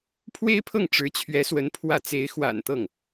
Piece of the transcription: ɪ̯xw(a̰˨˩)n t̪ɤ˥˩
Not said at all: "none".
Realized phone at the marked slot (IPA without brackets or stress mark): a̰˨˩